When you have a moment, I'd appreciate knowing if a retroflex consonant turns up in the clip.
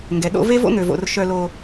no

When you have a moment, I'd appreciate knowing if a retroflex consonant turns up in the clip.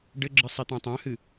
yes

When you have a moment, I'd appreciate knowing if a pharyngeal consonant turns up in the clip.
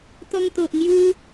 no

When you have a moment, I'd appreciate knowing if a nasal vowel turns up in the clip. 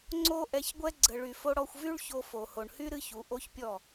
no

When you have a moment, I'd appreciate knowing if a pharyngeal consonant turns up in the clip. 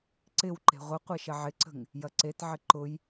yes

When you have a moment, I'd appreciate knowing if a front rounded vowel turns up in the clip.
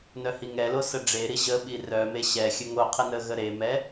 yes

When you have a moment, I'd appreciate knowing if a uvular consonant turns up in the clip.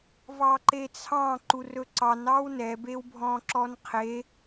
yes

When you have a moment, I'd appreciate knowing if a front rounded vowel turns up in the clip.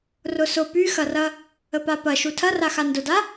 yes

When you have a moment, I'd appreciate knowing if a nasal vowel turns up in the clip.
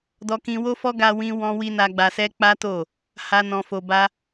yes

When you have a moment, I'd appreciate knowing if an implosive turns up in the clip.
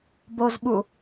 yes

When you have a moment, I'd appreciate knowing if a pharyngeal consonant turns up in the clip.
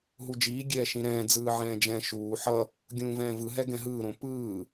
yes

